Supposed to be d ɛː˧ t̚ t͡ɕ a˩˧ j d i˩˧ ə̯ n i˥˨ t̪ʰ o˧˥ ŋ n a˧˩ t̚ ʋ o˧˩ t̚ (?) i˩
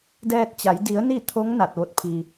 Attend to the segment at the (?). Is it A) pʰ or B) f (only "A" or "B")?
A